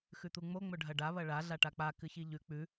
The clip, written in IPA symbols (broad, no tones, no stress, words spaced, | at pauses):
xʉt̪uŋ͡mo ŋ͡mɵɖʱɐɖa βɐɭa ɮaʈak͡pa kɨçiʎʉ k͡pʉ